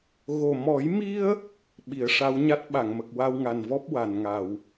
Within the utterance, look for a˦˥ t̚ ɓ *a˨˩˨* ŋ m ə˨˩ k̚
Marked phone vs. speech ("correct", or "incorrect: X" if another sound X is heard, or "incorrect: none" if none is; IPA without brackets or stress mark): correct